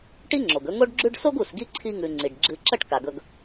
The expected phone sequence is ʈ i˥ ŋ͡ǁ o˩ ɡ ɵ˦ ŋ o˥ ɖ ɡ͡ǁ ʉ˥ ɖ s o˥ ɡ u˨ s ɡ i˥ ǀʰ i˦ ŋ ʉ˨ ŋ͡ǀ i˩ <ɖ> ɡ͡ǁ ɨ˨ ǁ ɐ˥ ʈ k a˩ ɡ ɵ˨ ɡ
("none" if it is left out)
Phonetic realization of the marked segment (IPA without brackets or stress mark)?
ɖ